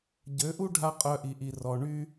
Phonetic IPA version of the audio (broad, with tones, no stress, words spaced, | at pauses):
ɟø˨˦ʔu˦ ɖʱa˦qʼœ˧ʔi˨ʔi˨ rɔ˨ɳy˦